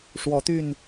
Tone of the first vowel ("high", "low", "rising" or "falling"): rising